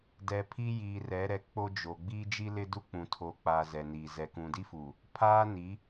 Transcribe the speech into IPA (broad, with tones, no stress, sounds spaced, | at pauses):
d ɛ˨ pʰ i˦ j iː˨ r ɛ˨˦ ɾ ɛ˨ k͡p o˦ d͡ʒ o˨ ɡ͡b iː˦ d͡ʒ i˦ l ɪ˦ d u˦ k͡p ũ˨ tʰ o˨˦ k͡p a˨ z ɛ˨ n iː˨ z ɛ˨ k ũ˨ d i˦ f uː˨ | pʰ aː˦ n i˨˦